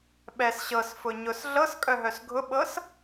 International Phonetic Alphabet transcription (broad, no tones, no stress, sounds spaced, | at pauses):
ɓ ɛ s ɕ ɤ s f ʊ ɲ ʊ s ɮ ɤ s kʼ œ ɦ œ s ɡʱ ʊ ɓ ɤ s